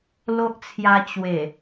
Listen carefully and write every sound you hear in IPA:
l o˦ ʔ t͡sʰ j a˧ t͡ɕ w e˨˩

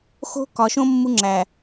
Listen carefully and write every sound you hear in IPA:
x o̤˦ k ɒ˨ ʃ õ˦ mː u˦ ŋ͡ǁ æ˨

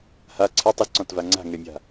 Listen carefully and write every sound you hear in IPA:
h a ǀʰ ɪ tˤ ʊ z ǀ ɔ̃ t v a ŋ͡ǀ a̤ ŋ ɛ mʲ a̤

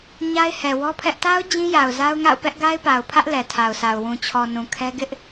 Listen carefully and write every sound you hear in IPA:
ɲ a˦ ɪ̯ h ɛ˨ w ɔ˦ pʰ ɛ˦ ʔ t a˦ ʊ̯ d͡ʑ ĩ˦ j a˨ ʊ̯ z a˦ ʊ̯ ŋ a̰˦˨ ʊ̯ p ɛ˦ ʔ ɡ a˦ ɪ̯ p a˨ ʊ̯ pʰ ä˦ ʔ l ɛ˨ tʰ a˨ ʊ̯ s a˨ ʊ̯ w ũ˨ t͡ɕʰ ɔ˨ n ũ˨ kʰ ɛ˦ ɡ ɪ˦ ʔ

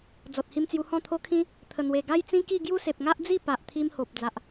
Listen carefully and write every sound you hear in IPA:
d͡z ɔ˨ t̚ h i˧ m t͡s j u˧ h ɔ̃˥˧ t̪ʰ o˦ kʰ ĩ˦ | t̪ʰ ə˨˩ n̪ w e˨˩ ɡ a˦ j t͡s ĩ˦ k i˥˧ ɡ j u˦ s e˨ p̚ ŋ a˦ ʔ d͡z i˥˧ p a˨ ʔ t̪ʰ i˧ m h o˨ p̚ d͡z a˨ ʔ

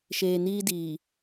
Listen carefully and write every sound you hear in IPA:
ʃ eː˨ n iː˦ d iː˨

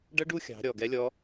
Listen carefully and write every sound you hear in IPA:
ɖ ʌ˥ ɖ u˥ xʲ ɑ̤˩˧ ɾʲ ɔ˩ ɡ ɛ˥ lʲ ɔ˧˥

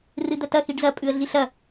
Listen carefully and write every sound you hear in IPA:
r ɨ d̪ ɐ t ɐ x i ɖ z ɐ pʼ ʉ ə̯ ɮ i ɬ ɐ

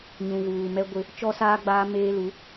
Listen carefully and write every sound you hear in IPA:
ɲ ũ˨ ɣ uː˨ m ɛ˦ ɡʷ ɪ˦ | t͡ʃ ɔ˦ s aː˦ ɡ͡b aː˦ m eː˦ l u˨˦

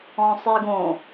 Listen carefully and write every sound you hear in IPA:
ɔ̃ sˤ i ɡ õ

